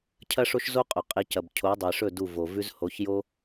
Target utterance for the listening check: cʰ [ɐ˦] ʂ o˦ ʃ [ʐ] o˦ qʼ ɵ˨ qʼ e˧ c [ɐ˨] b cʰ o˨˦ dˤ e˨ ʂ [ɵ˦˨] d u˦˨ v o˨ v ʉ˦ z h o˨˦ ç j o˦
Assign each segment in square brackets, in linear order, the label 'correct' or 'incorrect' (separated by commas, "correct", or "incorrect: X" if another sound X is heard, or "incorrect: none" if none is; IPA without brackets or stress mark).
correct, incorrect: z, correct, correct